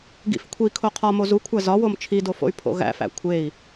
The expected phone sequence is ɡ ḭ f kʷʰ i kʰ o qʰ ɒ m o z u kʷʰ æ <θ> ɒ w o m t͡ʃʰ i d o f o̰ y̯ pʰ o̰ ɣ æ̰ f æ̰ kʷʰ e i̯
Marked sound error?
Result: yes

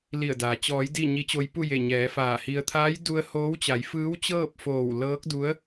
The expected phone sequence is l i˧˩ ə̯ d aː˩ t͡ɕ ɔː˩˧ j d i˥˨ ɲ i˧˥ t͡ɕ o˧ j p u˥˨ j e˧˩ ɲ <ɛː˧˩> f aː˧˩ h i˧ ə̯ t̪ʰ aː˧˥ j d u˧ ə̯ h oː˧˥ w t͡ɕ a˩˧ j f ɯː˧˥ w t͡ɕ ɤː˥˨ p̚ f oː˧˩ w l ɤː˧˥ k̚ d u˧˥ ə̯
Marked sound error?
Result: yes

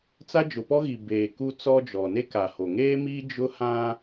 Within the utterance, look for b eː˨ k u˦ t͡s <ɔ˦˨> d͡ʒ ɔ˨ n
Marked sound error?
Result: yes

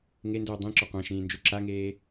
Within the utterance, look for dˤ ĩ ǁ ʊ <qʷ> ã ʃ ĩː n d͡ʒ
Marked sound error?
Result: no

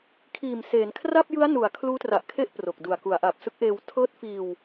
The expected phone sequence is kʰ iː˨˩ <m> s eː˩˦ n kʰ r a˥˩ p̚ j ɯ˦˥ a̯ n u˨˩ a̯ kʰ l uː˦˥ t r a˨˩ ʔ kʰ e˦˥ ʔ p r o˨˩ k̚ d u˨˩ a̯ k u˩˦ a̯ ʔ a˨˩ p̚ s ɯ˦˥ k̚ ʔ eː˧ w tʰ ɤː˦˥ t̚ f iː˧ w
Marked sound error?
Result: no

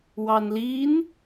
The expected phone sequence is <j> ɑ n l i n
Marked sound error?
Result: yes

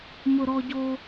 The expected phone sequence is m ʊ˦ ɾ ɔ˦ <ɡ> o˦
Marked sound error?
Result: yes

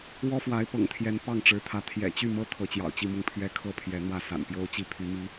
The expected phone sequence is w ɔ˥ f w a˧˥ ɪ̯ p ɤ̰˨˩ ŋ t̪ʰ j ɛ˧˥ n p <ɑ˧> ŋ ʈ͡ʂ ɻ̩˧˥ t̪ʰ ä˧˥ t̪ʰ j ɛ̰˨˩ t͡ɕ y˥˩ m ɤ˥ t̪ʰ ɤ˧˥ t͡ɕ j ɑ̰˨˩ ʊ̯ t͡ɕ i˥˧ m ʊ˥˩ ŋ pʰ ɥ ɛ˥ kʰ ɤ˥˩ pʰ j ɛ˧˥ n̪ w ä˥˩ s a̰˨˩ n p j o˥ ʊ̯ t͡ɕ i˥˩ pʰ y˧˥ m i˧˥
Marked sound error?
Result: yes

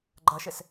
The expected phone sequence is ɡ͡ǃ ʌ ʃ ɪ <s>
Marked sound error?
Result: no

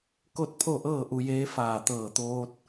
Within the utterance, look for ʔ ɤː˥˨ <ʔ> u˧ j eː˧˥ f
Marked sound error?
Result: no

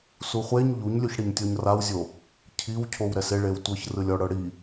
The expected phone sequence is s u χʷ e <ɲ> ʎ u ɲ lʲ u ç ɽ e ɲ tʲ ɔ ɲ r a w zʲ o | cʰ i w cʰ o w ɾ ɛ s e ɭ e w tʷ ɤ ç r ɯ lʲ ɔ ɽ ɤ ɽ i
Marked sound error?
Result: no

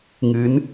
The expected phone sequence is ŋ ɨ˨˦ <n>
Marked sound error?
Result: no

